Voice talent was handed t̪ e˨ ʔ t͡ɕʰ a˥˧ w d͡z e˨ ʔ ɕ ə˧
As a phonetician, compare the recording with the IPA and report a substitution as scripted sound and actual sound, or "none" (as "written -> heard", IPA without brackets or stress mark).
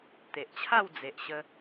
none